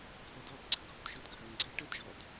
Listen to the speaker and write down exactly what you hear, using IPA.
ɡʱɔdɔtɡ͡ǀɐ ɡʱotʒɵdɡʱɐŋɡ͡ǀe ʈədʒɔd

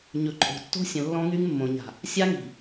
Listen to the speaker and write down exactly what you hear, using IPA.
ɲɵ˨ǃʼo̤˨tːo̤˦sʲə̃˨ lːɔ̃˦ŋy˦ŋmːõ˨ ɲa̤˨ | sʲa˦ŋi̤˨

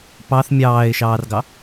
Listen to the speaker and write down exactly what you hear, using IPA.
pɑθ mʲɑːɪ̯ʃɑːrɡɑ

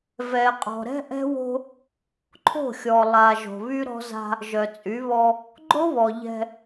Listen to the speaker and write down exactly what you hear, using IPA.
vɛ˨qʼɔ̤˨ ɾɛ̤˦ʔɛ̤˦wo̤˦ | ǃʰo̤˦˨xʲɔ˨ lˠa˨ ʒo̤˨βy˦ ɾɔ̤˦za̤˦ | ʒœ˨t͡sʼy˨˦βɔ˦ | ɡ͡ǃo˦βɔ˨ ʎɛ̤˦

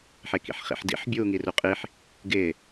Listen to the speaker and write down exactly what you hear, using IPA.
ħekḭħχḭħdḭħ bʲuːŋiruqʼiħ | ɡɪː

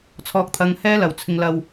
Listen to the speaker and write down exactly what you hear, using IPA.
t͡sʰɔː˧k̚t̪ʰɐ˧ŋ hɛː˥lɐ˨wt͡sʰɪ˧ŋlɐ˧w

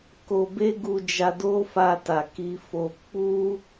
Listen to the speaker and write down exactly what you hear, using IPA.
ko˧be˦ɡu˧ d͡ʒa˧do˦fa˧ ta˨ki˧fo˧ k͡pu˦

